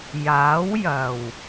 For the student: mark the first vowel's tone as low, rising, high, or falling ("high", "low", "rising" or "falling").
rising